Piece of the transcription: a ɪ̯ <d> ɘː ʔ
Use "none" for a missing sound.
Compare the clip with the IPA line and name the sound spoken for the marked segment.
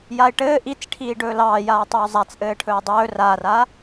ʈ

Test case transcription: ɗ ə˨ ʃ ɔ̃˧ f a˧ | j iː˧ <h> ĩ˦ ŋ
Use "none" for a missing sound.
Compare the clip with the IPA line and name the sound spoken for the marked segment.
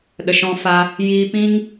p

